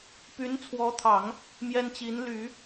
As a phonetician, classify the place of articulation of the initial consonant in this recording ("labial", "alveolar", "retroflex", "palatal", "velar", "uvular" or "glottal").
labial